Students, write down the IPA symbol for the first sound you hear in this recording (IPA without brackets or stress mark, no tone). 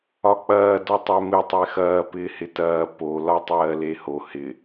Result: ɒ